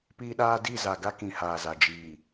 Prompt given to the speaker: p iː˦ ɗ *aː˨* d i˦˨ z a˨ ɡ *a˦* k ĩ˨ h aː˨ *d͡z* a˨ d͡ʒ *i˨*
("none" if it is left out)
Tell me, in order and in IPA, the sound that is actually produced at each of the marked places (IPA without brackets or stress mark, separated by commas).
aː˦, a˦, z, iː˨